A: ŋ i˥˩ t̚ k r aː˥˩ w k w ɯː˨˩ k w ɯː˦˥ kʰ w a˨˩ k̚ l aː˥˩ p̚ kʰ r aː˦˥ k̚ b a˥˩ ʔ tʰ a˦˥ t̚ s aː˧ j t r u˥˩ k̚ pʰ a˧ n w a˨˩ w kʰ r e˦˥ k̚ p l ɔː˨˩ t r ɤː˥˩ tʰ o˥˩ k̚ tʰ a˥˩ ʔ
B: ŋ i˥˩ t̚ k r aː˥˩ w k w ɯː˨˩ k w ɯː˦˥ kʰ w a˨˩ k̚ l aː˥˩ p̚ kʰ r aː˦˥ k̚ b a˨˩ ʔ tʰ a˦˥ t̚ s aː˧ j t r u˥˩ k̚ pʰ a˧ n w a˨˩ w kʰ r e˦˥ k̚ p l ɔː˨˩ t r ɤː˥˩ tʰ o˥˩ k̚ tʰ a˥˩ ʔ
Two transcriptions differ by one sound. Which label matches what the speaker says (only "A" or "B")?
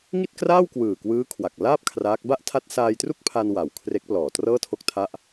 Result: A